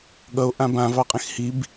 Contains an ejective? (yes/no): yes